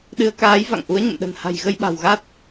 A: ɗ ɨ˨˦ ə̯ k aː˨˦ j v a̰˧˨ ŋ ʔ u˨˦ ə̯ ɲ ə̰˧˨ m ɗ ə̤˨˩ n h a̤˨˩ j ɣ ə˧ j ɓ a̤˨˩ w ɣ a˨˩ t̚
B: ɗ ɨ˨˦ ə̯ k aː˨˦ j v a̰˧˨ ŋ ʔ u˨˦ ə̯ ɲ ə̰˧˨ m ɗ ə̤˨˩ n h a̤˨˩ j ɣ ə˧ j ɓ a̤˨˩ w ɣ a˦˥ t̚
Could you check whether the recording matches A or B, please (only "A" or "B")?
B